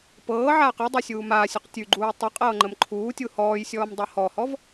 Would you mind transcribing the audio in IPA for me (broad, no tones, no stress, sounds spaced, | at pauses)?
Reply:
p ɤː ʕ aː q ɨ dˤ ʉ sʲ uː m aː sʲ ʉ q tʲ ʉ ɡ͡ǃ uː tˤ ɨ qʼ ɤː ŋ͡ǃ ə m ǃʰ uː tʲ u h ɔː j sʲ ɔː m dˤ ɤ h ɔ h ɔ v